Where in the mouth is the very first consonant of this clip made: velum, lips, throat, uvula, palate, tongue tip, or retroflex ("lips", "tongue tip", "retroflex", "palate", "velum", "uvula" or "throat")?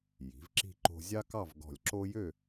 palate